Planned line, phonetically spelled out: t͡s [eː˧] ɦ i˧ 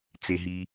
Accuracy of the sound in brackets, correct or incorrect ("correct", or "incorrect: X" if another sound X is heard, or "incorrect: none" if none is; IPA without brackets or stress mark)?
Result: incorrect: e˧